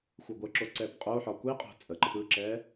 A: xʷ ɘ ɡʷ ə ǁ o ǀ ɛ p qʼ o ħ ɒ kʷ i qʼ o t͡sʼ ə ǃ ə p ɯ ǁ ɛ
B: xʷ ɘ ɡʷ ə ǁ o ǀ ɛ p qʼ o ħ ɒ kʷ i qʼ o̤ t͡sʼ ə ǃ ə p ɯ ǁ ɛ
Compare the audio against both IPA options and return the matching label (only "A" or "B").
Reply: B